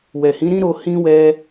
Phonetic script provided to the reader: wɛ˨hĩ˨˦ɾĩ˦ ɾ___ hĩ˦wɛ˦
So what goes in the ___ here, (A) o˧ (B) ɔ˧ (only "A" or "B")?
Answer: A